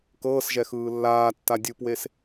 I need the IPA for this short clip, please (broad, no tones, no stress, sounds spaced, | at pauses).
k ɤː s ʒ ɛ x ɯː lː aː tː a dʲ ɯ p w e s